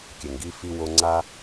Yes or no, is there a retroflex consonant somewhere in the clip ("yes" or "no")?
no